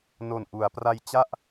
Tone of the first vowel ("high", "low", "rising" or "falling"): low